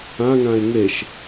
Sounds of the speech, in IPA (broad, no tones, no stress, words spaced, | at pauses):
ãŋãe̯ ŋeʃ